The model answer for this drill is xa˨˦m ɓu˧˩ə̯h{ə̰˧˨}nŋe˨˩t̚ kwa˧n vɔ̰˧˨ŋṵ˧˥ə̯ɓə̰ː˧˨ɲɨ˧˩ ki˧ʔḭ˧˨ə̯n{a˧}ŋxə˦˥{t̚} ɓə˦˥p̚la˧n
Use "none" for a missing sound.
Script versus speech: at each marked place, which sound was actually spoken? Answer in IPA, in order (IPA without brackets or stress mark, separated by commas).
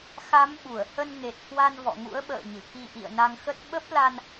ə˧, a˧, t̚